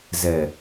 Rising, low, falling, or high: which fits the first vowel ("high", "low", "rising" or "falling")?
low